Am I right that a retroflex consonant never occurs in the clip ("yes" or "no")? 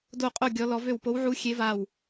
yes